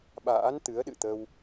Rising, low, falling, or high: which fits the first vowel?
rising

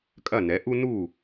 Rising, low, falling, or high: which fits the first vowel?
falling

